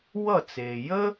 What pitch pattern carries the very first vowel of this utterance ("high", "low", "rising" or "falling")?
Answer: falling